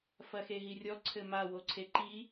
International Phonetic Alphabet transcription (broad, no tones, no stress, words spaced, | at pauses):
fɐxeɦirʲɔ ǀʰɘma woǀʰeǃi